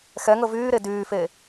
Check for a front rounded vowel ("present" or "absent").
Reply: present